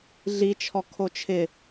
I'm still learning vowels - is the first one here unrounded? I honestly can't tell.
yes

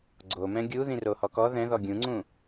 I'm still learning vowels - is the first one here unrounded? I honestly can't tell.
no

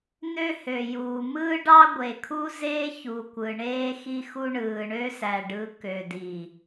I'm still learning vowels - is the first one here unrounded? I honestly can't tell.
no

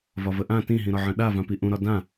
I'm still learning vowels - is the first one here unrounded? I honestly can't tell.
no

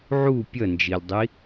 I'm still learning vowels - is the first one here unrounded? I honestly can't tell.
no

